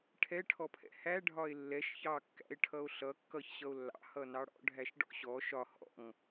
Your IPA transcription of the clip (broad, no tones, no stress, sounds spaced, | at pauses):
ʈʰ ɛ ʈʰ ɔ pʰ ɛ̰ h æ ɖʱ ɒ e̯ lː ɛ ʃ ç ɑ kː æ̰ e̯ ʈʰ ʌ o̯ ɬ ʌ kː ʌ ç ɕ ʌ o̯ lː ɑ̰ h ʌ n ɑ ɽ ɔ̰ ɖʱ æ ʃ ɖ ɔ̰ ɕ ɔ ʃ ɒ h ɔ̰ ŋ